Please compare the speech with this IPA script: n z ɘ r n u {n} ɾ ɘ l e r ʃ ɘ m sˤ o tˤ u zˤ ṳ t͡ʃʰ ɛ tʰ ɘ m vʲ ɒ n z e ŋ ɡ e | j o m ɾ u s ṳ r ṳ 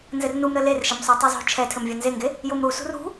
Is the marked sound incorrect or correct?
incorrect